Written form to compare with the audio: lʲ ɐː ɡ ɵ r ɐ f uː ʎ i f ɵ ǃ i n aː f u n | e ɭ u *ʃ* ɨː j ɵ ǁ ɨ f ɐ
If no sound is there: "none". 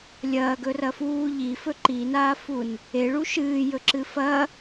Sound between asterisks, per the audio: ʃ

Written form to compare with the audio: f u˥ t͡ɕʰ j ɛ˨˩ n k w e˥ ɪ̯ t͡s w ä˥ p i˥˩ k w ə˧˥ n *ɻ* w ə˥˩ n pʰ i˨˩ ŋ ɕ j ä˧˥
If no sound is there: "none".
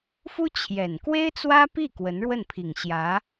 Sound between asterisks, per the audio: ɻ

